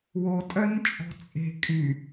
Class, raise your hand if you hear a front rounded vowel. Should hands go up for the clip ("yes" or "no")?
yes